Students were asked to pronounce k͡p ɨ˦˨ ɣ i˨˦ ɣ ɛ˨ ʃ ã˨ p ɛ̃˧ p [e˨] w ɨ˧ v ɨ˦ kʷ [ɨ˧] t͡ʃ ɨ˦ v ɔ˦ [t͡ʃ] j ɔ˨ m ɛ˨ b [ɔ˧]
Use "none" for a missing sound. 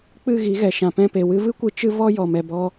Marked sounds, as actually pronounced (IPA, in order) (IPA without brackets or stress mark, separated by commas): e˨, ɨ˧, none, ɔ˧